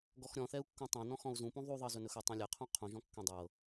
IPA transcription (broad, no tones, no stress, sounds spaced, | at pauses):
ɡ ɔ x ɾʲ ɔ̃ θ ɛ u̯ kː ũ tˤ ɛ̃ n ɔ̃ x ɔ̃ u̯ z ũ p ũ ðˤ u ðˤ ɤ z ɵ n ɵ x ɵ tˤ ũ lʲ ɛ qʰ ũ qʰ ũ ʒ ɔ̃ kː ɛ̃ dˤ ɤ